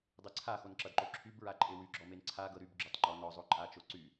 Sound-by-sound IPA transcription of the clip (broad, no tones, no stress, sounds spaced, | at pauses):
dˤ e ǀʰ a x o n ǁ ʌ d ǃ o ǁʰ y b ɹ a ǃʼ e w y ɡ͡ǁ ɔ m e n ǀʰ a ɡ ɤ ɾ y b ɡ͡ǁ o tˤ ŋ͡ǃ ɔ n ɔ zˤ o ǃʼ a t͡ʃ o ǀ y